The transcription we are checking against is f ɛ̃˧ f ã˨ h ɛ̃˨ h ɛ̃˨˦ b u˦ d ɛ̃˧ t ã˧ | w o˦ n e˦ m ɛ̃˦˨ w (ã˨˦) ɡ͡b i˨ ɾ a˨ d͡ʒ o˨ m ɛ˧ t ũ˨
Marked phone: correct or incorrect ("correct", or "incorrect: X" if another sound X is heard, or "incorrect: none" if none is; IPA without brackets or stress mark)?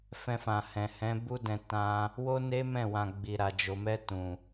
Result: incorrect: ã˨